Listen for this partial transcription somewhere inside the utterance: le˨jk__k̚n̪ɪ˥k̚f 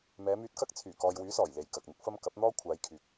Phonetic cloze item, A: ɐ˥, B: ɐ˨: B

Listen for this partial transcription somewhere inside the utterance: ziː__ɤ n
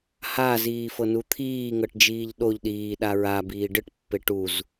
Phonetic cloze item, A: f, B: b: A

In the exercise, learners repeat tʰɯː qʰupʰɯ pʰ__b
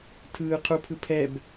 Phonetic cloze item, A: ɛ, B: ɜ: A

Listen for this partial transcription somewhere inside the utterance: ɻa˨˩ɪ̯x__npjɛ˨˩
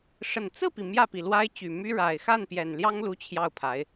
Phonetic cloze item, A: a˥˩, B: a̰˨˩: A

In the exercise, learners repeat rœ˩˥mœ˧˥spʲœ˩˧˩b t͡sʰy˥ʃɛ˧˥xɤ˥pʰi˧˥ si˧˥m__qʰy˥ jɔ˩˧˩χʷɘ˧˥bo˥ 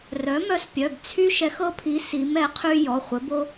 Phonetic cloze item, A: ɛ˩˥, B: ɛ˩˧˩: A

